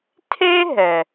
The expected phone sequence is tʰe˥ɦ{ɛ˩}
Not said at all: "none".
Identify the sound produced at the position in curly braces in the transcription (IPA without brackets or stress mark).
ɛ˩